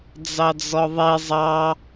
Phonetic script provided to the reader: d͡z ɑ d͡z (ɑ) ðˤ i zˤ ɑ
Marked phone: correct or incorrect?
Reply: incorrect: ɔ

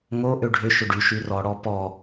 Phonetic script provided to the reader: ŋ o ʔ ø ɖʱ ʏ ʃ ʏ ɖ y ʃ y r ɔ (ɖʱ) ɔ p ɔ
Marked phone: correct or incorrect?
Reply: incorrect: ɽ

